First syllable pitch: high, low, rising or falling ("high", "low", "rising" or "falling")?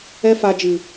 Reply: high